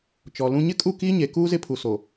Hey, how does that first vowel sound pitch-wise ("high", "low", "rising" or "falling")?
low